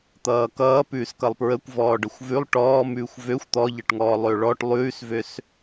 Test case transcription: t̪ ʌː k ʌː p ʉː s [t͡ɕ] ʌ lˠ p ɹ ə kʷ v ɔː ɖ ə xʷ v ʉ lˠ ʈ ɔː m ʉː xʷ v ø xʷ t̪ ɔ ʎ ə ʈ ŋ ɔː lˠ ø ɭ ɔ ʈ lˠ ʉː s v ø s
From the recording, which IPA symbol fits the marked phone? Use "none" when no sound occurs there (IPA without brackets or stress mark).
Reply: k